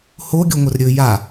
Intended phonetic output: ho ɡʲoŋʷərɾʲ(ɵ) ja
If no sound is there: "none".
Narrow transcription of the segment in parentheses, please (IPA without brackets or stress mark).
ɵ